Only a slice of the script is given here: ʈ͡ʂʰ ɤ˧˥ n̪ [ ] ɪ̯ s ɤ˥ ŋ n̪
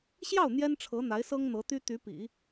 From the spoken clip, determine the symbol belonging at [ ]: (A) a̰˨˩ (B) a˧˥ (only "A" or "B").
B